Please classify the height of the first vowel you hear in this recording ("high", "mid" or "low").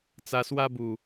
low